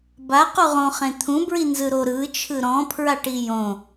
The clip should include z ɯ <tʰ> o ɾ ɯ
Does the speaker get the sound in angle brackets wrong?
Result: yes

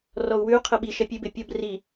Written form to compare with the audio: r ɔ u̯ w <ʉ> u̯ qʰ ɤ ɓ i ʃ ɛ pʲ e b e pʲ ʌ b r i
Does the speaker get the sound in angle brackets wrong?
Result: no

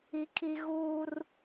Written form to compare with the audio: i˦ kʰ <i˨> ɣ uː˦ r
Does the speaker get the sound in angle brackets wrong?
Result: yes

